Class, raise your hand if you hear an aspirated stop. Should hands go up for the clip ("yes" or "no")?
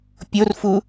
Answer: no